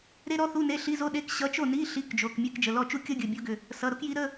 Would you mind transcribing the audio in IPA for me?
ɾ e˥ ɾ ɔ˥ θ u˧˥˧ n e˧˥˧ ɬ i˧˥˧ z o˥ ɗ e˧˥˧ k ɕ ʌ˧˥ t͡ʃ o˥˨ n i˧˥˧ ɬ i˧˥˧ k d͡ʒ o˩˧˩ k mʲ e˧˥˧ k d͡ʒ ə˩˧˩ l ɔ˥˨ t͡ʃ u˥ kʲ ʌ˥ ɡʲ ə˩˧˩ bʲ o˧˥ ɡ ʏ˩˧˩ | s ʌ˩˧˩ ɾ o˥ k j i˧˥ ɾ ə˧˥˧

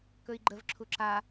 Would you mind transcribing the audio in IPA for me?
k ɵ i̯ ɡ͡ǃ ə v ǁʰ u ǁ a

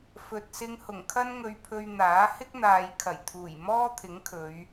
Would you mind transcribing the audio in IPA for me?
f ɵ˨ t̚ s ɪ˧ ŋ h ʊ˨˩ ŋ kʰ ɐ˥ n ŋ ɵ˧ ɥ pʰ ɵ˧ ɥ n̪ aː˨˥ h ɪ˥ k̚ n̪ aː˨ j kʰ ɐ˨˩ j t̪ʰ uː˨˩ j m ɔː˥ t̪ʰ ɪ˨˥ ŋ kʰ ɵ˨˧ ɥ

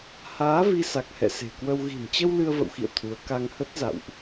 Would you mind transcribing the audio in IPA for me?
h aː˨˦ v i˧ s a˨˩ k̚ h ɛ̰˧˨ s e̤˨˩ k w ə˧ w ɣ i̤˨˩ n t͡ɕ ə˧ w l ɨ˧ ə̯ v ə̰˧˨ w x ḭ˧˨ ə̯ t̪ʰ u˨˦ ə̯ k a˧ ŋ h ə˦˥ t̚ z a̰˧˨ w ʔ

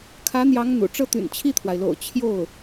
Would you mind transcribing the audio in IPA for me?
kʰ ä˧˥ n̪ j ɑ˧˥ ŋ n̪ ṵ˨˩ ʈ͡ʂ ɤ˥˩ t̪ y̰˨˩ n t͡ɕʰ i˥˩ t̪ʰ w a˩ ɪ̯ l o̰˨˩ ʊ̯ t͡ɕʰ j o˥˩ ʊ̯

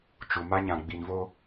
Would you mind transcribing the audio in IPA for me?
t͡ʃ u˨ m a˦ ɲ ã˨ ɡ͡b i˨ n v o˦

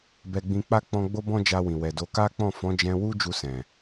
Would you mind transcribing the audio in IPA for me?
b ɛ˧ ɡ͡b ĩ˧ k͡p a˦ k͡p ɔ̃˧ ɡ͡b o˦ b ɔ̃˦ d͡ʒ a˧ w ĩ˨ w ɛ˨ d o˨˦ k a˦ k͡p ɔ̃˦˨ f ɔ̃˨˦ d͡ʒ ɛ̃˧ w u˦ d͡ʒ u˧ s ɛ̃˨

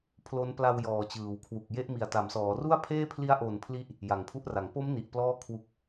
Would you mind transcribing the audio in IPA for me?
pʰ l o˦˥ n p l a˧ w j ɔː˨˩ t͡ɕ ɯː˩˦ w kʰ w u˨˩ k̚ j e˦˥ ʔ m i˨˩ a̯ t a˩˦ m s ɔː˩˦ r u˥˩ a̯ pʰ eː˥˩ pʰ l i˦˥ a̯ ʔ o˨˩ n pʰ l i˦˥ ʔ | j a˩˦ ŋ pʰ u˦˥ ʔ r a˩˦ ŋ p o˦˥ m n i˨˩ ʔ p l ɔː˥˩ kʰ w u˨˩ k̚

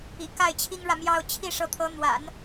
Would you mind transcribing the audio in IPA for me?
ḭ˨˩ k a˥˩ ɪ̯ t͡ɕʰ i˥ ŋ ɻ ä˨ m j ɑ˥˧ ʊ̯ t͡ɕʰ i˥˩ ʂ ɤ˧˥ t̪ʰ ɤ˧˥ n̪ w a̰˨˩˦ n

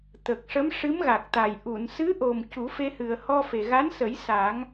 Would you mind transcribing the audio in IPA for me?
t̪ ə˨˩ k̚ ʂ ə˧˥ m ʂ ɨ˧˥ m ɣ a˨˩ k̚ t̪ a˨˩ j ʔ u˨˩˨ n s ɨ˧˥ ʔ o˨˩ m c u˨˩˦ f e˧ h ɨ˨˩ ə̯ h ɔ˧ f e˨˩ ɣ a˧˥ n s ə˨˩˦ j s a˨˩˦ ŋ

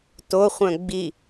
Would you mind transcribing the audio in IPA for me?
t o χʷ œ̃ ɡ͡b i

